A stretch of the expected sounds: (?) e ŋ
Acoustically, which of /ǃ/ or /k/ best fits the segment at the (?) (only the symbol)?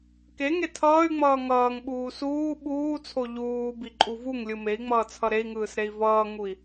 k